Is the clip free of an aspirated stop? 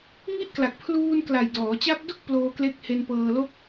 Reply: no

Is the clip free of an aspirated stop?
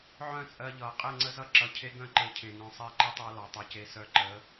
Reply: no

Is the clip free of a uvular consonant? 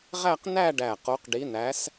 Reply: no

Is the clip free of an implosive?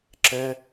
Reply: yes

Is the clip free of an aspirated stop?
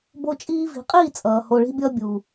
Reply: yes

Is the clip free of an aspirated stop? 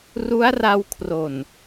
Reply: no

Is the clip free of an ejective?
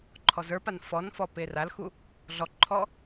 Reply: yes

